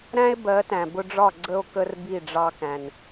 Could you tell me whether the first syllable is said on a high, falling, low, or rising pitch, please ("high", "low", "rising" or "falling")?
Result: high